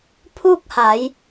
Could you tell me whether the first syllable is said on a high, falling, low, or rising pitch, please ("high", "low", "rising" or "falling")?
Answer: falling